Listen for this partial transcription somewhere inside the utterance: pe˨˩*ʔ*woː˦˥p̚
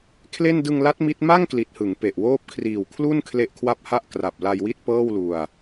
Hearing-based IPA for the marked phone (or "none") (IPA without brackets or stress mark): ʔ